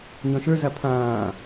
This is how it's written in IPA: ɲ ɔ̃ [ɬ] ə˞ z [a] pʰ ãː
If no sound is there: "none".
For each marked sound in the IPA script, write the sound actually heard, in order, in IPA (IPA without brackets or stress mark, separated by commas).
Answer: ʃ, a